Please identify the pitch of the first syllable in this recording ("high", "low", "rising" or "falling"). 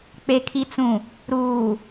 low